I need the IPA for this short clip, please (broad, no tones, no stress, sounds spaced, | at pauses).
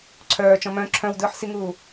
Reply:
ǀʰ œː t͡ʃ ɔ̃ m œ̃ ǁʰ œ̃ w d ɯː ħ s i ŋ uː